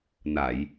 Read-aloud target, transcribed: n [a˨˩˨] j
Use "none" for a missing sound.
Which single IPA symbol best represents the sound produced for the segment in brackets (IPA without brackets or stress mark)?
a˨˩˨